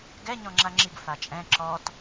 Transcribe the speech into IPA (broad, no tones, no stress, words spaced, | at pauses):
ɡɛ ɲɔ̃ŋ͡ǁaŋ͡ǁiɡ fat͡ʃʼɛ̃ ǁɔt